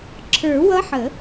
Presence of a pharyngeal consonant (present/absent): present